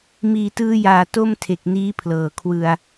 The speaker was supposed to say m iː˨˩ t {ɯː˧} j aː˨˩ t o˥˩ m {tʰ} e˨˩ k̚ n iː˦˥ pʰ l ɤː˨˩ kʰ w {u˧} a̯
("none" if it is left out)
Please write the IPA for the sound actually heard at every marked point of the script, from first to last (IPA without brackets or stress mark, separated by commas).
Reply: ɯː˧, tʰ, ɯ˧